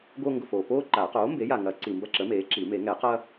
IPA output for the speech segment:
ɡ o˦ ŋ ɡ ʊ˨ f oː˨ p oː˦ ǃ aː˨˩˦ q oː˩˥ m b e˩˥ j a˨ ŋ ɐ˨˩˦ ǀ i˨ m b ɐ˦ ǁ ə˩˥ m eː˩˥ ǁ i˨˩˦ m e˨˩˦ ŋ ɛ˨˩˦ q ɐ˦

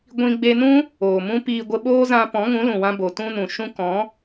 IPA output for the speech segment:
ɡʷ ĩ˧ ɡ͡b e˧ n ũ˦ | oː˨ m ũ˦ p iː˧ ɡʷ ə˧ ɓ oː˦ z ã˧ p ɔ̃˨˦ ŋ ũ˨˦ l ũ˨ w ã˧ b o˨ t ũ˧ n ũ˨ ʃ ũ˧ k ɔ̃˨˦

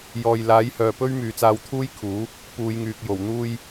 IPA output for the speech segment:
j ɔː˨ j l aː˨˥ j h œː˨ p ɵ˥ ɥ m yː˨ t͡s aː˧ w t̪ʰ uː˥ j kʰ uː˨˥ | p uː˨˧ j ŋ yː˨ k̚ j o˨˩ w n̪ uː˧ j

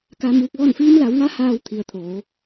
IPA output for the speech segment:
k a˧ m uː˧ k̚ ʋ ɔː˥˨ n f iː˧ m l a˩˧ w ŋ a˧ h aː˧ w t̪ʰ i˩ ə̯ t̪ʰ oː˩˧

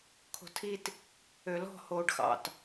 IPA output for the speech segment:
kʰ o̤ tʰ i t | ø l ɔ̤ h oː ɖ x ɑ̰ t

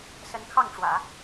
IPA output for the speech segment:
s ə˧˥ n kʰ ɑ˥˩ ŋ ʈ͡ʂ w ä̰˨˩˦

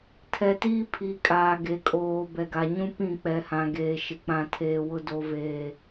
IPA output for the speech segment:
tʰ ɛ˨ t iː˦ pʰ i˨ kʼ aː˨ ɡ e˨ kʼ oː˨ b ɛ˨ ɡ a˨ ɲ ũ˦ p ĩ˦˨ k͡p ɛ˨ h ã˨ ɡ eː˨ ʃ ɪ˦ k͡p ã˦ tʰ eː˦ w ʊ˦ d o˦ v eː˦

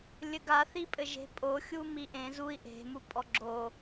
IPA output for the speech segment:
lʲ ɘ ɡ a θ i pʼ ɘ ʒ e̤ pʼ o xʲ u m i ʔ ẽ z u i̯ ʔ e̤ m u pʼ ɔ ɡ͡ǁ o

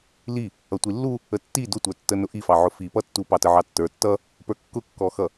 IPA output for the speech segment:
l i | ʌ tʷ i lː u | ə tː i d ʊ tʷ ə˞ tː ə n ʊ ʔ i f ɑ ʕ ʊ f i p ʌ tː u p ɑ t ə ʕ ɑ tː ə˞ tː ʌ | p ə˞ kː ʊ kː ɔ x ʌ

